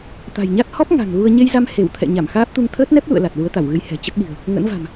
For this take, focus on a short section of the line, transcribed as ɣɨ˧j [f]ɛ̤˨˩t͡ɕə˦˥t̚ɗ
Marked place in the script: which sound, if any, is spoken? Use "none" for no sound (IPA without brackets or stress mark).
h